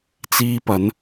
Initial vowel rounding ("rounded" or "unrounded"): unrounded